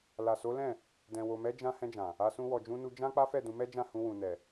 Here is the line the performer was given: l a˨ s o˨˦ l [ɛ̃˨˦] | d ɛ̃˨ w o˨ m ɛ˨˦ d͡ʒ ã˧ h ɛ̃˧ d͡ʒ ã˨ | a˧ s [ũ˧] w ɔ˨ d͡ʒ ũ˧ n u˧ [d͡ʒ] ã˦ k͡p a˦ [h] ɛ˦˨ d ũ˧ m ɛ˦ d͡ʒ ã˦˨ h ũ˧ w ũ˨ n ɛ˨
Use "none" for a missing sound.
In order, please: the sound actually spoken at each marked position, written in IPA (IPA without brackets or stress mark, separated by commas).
ɛ̃˦˨, ũ˧, d͡ʒ, f